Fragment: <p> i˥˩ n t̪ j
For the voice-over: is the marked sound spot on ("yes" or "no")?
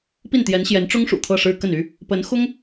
yes